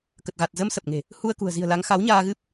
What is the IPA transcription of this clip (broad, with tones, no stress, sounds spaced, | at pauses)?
k ə˨˩ t̚ ɣ a˨˩ t̚ z ə˧ m s ə˨˩ p̚ ŋ e̤˨˩ | h u˧ ə̯ k ṳ˨˩ ə̯ z i̤˨˩ ə̯ l a˨˦ ŋ x a˨˦ w ɲ aː˧ ɣ ɨ˦˥ p̚